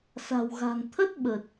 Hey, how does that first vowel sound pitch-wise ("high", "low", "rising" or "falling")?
low